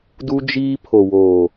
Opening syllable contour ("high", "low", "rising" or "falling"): high